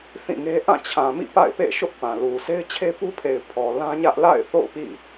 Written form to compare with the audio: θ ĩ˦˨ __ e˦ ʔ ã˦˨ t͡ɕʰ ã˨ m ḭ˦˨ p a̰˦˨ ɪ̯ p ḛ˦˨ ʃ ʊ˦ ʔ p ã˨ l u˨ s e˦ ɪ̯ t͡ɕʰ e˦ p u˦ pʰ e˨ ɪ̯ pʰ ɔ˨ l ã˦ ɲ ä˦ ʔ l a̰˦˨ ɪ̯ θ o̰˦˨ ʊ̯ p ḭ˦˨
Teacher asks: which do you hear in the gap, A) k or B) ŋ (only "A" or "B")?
B